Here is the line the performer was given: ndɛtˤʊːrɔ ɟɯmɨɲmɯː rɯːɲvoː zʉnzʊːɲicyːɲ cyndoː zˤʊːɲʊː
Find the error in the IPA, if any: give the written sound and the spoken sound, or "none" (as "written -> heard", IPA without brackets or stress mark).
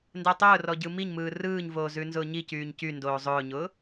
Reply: ɨ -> i